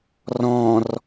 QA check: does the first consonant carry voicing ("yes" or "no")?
yes